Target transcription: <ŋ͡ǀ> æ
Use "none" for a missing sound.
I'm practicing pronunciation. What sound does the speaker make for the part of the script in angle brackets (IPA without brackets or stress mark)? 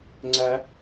ŋ͡ǀ